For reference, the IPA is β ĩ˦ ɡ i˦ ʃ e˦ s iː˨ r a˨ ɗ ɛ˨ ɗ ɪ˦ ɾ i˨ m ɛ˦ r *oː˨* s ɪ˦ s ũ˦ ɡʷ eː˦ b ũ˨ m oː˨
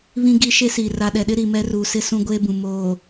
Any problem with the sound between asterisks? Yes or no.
yes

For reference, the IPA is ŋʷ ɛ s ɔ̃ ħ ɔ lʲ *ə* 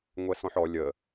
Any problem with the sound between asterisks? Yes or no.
no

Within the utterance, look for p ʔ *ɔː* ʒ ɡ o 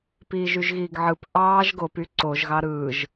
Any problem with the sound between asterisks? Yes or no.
yes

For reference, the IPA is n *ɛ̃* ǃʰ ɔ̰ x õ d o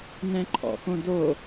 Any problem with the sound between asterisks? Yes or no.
no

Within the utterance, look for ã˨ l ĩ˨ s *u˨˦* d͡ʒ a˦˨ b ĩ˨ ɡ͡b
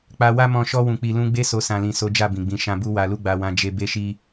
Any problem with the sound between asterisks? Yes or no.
yes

